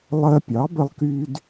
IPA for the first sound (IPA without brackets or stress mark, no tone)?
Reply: lˠ